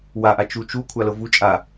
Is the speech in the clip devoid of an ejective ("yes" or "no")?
no